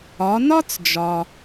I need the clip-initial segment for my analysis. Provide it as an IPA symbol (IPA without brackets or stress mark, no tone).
ɒ